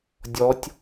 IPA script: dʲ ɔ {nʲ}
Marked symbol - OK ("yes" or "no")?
no